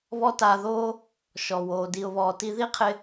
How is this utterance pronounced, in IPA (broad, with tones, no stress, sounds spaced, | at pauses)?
β ɔ˥ t aː˧ ð oː˥ | ʃ ɔ˩ w oː˩ d i˩ ʊ̯ β ɔː˩ t i˧ ð i˥ qʰ ɪ˧